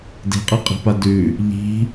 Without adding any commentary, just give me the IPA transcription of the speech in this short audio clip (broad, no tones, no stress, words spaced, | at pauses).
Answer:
di̤qʼi qʼi̤padʉ | ʎi̤